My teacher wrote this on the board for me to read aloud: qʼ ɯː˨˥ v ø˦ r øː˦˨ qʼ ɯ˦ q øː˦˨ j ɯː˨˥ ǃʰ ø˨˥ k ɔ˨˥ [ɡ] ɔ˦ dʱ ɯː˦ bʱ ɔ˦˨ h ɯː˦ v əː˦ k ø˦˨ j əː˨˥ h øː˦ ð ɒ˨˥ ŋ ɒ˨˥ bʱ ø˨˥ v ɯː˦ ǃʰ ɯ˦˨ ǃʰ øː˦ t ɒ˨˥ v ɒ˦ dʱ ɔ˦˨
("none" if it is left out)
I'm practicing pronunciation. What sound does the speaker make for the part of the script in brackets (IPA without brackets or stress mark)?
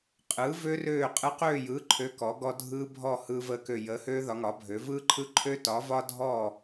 ɡ